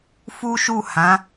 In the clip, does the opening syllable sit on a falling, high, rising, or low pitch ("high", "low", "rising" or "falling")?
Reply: high